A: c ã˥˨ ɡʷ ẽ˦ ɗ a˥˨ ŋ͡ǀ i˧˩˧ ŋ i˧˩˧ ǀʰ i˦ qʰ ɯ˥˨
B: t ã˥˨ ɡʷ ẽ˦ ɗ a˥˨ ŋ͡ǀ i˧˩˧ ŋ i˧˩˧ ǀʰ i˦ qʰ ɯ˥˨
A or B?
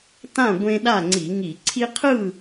B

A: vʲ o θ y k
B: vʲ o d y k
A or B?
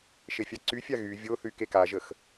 A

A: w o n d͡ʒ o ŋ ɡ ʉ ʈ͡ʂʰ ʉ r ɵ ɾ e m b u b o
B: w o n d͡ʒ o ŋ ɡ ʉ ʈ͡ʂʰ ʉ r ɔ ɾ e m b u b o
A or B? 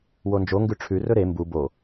A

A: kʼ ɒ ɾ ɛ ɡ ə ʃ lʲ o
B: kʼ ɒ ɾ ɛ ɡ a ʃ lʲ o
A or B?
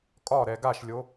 B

